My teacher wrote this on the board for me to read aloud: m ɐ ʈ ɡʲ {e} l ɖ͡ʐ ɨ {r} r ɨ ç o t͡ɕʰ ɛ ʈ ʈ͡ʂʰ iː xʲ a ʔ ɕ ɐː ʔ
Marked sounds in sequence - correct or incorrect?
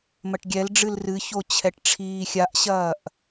incorrect, incorrect

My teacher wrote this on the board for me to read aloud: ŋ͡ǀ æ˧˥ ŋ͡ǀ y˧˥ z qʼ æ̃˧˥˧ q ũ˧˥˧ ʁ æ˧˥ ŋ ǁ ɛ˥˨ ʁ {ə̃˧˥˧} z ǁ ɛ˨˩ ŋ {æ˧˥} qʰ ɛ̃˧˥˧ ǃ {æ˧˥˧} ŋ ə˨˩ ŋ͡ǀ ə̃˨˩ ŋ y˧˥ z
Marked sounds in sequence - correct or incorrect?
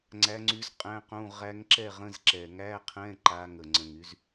correct, incorrect, incorrect

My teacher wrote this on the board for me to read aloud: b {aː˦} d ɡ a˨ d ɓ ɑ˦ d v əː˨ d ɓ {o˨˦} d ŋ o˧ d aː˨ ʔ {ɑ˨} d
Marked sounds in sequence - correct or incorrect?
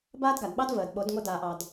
correct, correct, correct

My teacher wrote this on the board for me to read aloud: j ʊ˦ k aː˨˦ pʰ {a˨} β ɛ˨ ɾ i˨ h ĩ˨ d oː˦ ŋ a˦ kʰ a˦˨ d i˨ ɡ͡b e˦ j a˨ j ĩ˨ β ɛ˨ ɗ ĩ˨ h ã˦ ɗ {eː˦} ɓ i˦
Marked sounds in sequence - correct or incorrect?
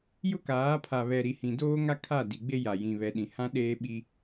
correct, correct

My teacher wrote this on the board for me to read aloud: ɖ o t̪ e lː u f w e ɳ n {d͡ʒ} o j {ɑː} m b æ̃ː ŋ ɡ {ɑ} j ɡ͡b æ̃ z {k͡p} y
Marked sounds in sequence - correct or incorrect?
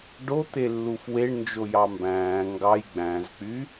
correct, incorrect, correct, correct

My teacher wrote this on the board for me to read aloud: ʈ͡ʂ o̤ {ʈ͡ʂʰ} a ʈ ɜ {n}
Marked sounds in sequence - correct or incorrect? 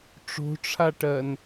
correct, correct

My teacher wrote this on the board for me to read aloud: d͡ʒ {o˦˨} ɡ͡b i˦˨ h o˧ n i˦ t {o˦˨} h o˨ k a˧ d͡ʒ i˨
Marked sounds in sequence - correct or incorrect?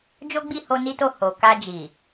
incorrect, correct

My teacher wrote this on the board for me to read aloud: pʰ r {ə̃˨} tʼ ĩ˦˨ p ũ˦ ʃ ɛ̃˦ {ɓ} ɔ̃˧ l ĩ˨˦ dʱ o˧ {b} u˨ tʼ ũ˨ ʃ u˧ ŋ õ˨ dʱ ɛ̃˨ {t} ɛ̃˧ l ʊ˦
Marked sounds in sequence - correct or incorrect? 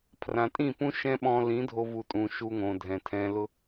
incorrect, correct, incorrect, incorrect

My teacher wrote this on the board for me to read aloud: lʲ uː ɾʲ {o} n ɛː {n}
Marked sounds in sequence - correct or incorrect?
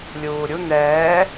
incorrect, incorrect

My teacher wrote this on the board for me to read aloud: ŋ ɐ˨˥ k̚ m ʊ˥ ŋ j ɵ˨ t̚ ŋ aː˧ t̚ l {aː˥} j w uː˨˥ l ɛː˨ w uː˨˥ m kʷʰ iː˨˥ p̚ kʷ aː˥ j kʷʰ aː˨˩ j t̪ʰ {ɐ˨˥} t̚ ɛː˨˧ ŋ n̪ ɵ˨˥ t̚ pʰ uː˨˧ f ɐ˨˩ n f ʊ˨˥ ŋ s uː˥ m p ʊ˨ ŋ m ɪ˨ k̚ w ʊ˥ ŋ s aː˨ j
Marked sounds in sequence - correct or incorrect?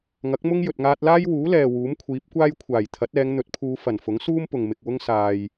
correct, correct

